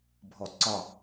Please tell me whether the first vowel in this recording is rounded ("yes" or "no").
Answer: yes